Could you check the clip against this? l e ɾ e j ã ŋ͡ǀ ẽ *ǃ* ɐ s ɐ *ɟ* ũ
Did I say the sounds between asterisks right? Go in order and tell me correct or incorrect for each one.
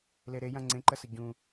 correct, correct

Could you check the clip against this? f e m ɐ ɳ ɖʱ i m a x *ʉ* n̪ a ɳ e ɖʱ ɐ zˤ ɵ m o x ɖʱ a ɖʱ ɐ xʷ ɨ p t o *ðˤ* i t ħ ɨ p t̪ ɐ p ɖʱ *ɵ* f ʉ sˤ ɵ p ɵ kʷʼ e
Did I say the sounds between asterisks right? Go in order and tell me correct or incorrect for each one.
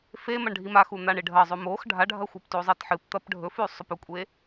incorrect: u, incorrect: zˤ, correct

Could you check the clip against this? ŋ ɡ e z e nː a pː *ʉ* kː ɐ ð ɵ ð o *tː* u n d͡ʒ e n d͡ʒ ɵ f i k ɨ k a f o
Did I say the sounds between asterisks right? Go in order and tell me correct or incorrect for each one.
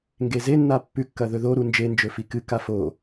correct, incorrect: ɾ

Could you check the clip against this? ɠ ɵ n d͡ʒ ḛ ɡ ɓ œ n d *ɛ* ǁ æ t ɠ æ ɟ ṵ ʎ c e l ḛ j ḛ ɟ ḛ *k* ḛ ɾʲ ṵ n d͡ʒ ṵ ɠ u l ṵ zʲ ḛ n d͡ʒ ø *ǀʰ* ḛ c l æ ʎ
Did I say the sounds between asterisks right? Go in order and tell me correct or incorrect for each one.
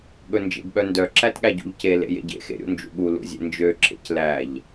incorrect: œ, incorrect: x, incorrect: ǁʰ

